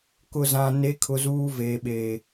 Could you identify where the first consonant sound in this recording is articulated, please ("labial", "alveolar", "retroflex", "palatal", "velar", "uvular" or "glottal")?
velar